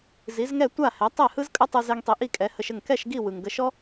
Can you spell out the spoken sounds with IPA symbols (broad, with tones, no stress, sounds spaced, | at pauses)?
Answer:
z i˩˥ z ŋ ɛ˥˩ tʷ a˥˩ h ɛ˩˥ tˤ ɛ˥˩ h ɯ˥ z kʼ ə˥ tˤ ɯ˧ z ɛ˧ ŋ tˤ i˩ ʔ i˥˩ kʼ ɛ˩˥ h ə˧ ʃ ə˥˩ ŋ k ɛ˥˩ ʃ ɡ i˥˩ w ɯ˩ ŋ ɡ ə˧ ʃ ɔ˥